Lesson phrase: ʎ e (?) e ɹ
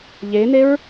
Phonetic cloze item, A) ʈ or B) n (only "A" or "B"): B